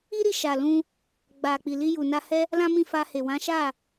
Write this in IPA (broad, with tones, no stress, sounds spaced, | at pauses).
i˦ ɾ i˦˨ ʃ a˨ l ũ˧ | ɡ͡b a˨ k͡p i˨ l i˧ j u˨ n a˧ h ɛ˦ | l ã˦ m ĩ˦˨ f a˧ h e˨ w ã˨˦ ʃ a˦˨